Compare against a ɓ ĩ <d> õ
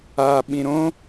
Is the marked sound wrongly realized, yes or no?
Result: yes